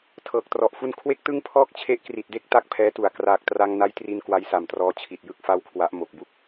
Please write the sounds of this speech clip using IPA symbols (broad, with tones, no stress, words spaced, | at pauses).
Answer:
tʰɤː˨˩k̚trɔ˨˩ʔfu˥˩n kʰwe˥˩k̚tɯ˥˩ŋpʰɔː˥˩k̚ t͡ɕʰe˦˥ʔkri˨˩t̚de˥˩k̚ ta˥˩k̚pʰɛː˦˥tu˨˩a̯ kraː˨˩k̚tra˧ŋ na˦˥jtri˧n kwa˦˥jsa˨˩mtrɔː˦˥t͡ɕʰi˨˩t̚ jɯ˥˩k̚fa˥˩wkʰwa˦˥ʔ mo˨˩k̚bu˦˥k̚